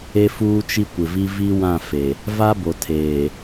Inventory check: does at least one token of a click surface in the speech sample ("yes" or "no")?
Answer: no